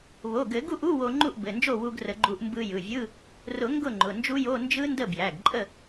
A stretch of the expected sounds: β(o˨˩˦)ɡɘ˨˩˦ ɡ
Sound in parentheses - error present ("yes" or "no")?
yes